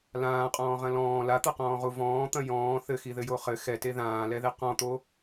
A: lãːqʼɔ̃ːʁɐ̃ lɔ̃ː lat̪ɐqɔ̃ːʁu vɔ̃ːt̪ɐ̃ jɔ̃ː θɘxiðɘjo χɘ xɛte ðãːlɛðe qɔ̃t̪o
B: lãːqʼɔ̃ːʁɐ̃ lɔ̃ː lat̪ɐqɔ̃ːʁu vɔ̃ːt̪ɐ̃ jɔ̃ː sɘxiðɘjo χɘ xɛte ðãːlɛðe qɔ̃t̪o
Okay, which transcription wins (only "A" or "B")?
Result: A